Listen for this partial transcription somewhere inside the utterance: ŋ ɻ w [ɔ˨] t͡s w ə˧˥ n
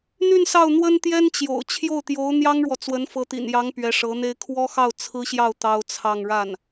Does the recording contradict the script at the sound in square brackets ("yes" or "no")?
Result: no